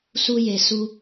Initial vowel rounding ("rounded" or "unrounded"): rounded